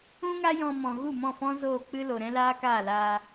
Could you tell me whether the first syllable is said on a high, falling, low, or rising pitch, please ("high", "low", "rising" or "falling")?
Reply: high